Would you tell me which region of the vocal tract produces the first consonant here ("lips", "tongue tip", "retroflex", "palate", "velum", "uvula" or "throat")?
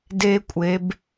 tongue tip